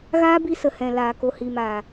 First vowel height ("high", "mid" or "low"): low